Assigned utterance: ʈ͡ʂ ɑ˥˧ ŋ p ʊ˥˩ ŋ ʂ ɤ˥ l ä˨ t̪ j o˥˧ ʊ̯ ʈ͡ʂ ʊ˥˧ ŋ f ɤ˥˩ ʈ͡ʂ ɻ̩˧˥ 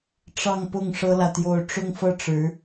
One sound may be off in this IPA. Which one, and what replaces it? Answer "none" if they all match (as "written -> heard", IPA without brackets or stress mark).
none